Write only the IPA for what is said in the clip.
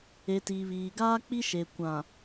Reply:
e˨ t iː˨ β iː˨ ɡ aː˦ k͡p i˦ ʃ e˨ kʷ ã˨

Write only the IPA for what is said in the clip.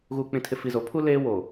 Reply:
ɣ uː˨ k͡p ĩ˨ tʰ ɪ˨ f i˨ z o˨˦ pʰ u˦ l eː˦ w o˨

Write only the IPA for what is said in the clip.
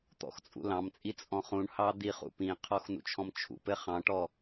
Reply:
t̪ ɔ̰ x t͡sʼ ṵ l ɑ̃ m t͡sʼ i t͡sʼ ɔ̃ χ ũ ɳ h ɑ d̪ i χ ṵ p ĩ qʰ ɔ x n ṵ t͡ʃʰ ɔ̃ m t͡ʃʰ ṵ p ɘ χ ɑ̃ ʈ ɔ

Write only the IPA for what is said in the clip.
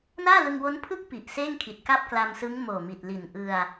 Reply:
n aː˥˩ l ɯ˧ ŋ w o˦˥ n pʰ ɯ˥˩ k̚ p i˨˩ ʔ s eː˥˩ ŋ kʰ i˨˩ t̚ k a˥˩ p̚ k l a˧ m s ɯ˦˥ ŋ m oː˨˩ m i˨˩ t̚ l i˨˩ n ʔ ɯ˧ a̯

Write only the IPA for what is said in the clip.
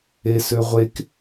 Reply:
e s ø ʁʷ e k

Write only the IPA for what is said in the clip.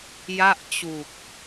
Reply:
j a˥˩ ʔ t͡ɕ u˨˩ k̚

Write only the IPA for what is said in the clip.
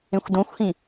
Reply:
ẽ xʷ d õ xʷ h ĩ

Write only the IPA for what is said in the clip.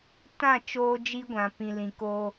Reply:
t ã˦˨ t͡ʃ oː˦ d͡ʒ i˦ ɡʷ ã˨ p ĩ˨ l ĩ˨ k o˦

